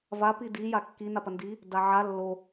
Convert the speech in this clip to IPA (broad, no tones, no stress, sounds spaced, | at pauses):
v a p i d i j a kː i n a p ɐ n d i | d a ʕ a lː o